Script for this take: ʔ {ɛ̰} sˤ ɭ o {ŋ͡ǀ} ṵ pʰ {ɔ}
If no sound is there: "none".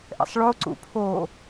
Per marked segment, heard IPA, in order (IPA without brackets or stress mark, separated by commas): ɛ̰, ǀ, o